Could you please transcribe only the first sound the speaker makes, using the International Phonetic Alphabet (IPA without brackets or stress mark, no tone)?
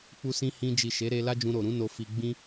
k͡p